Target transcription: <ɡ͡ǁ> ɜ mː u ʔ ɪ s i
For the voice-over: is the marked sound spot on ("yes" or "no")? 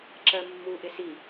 no